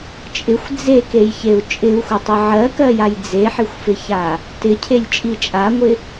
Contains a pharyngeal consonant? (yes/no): yes